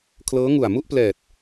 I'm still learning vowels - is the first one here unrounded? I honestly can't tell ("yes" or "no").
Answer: yes